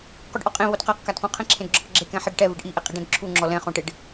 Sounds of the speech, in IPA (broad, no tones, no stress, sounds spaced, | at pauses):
q u ɖ ʔ ɔ qʼ ẽ β o d q a q k a d q ũ qʰ ɛ̃ ǁʰ ẽ d ɡ͡ǁ ɔ q ɡ͡ǁ e k ɛ̃ ħ ɛ ɖ ʈ ɛ v ɪ ɖ ʔ i ʔ e qʼ i ɖ ɛ̃ d ǁʰ u ŋ͡ǁ ɔ l ɛ̃ χ õ ʈ ɪ ɖ